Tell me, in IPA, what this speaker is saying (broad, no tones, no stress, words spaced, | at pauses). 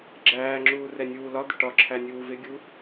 ɡ͡ǁæːŋ͡ǁuː rɛnʲuːlɒd̪ɪ ʈɒǁʰæ nʲuːvɪɡʲu